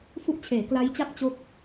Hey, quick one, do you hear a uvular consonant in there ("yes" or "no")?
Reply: no